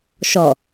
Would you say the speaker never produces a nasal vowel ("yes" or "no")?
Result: yes